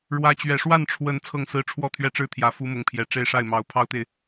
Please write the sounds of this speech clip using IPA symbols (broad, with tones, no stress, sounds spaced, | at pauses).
ɻ w ä˧˥ t͡ɕ ɥ ɛ˨˩ ʂ w a˥˩ n ʈ͡ʂʰ w ə˧˥ n t͡sʰ ɤ˥˩ ŋ s ɹ̩˥ ʈ͡ʂʰ w ɔ˥˩ t̪ʰ ɥ ɛ˥ ʈ͡ʂ ɻ̩˥˩ t̪ʰ j ä˧˥ f u˥ m ʊ˧˥ ŋ pʰ j ɛ˨˩ ʈ͡ʂ e˥˧ ɪ̯ ʂ a˥˩ ɪ̯ m ɑ˧˥ ʊ̯ pʰ ɑ˥ ʊ̯ t̪ e˨ ɪ̯